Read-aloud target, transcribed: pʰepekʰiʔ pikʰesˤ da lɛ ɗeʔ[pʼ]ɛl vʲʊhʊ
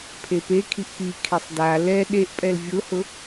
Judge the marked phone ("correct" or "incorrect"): correct